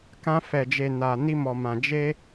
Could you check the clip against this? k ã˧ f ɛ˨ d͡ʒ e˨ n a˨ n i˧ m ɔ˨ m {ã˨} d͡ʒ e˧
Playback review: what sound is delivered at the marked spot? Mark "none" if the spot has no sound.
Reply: ã˨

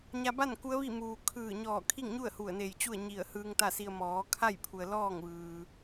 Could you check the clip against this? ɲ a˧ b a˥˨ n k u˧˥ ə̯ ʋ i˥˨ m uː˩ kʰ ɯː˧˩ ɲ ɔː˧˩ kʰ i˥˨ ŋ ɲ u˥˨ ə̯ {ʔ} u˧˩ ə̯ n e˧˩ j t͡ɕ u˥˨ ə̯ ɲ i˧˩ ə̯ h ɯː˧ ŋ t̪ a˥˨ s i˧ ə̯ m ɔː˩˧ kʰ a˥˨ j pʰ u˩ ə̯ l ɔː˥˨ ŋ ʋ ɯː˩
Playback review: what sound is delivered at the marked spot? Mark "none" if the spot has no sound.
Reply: h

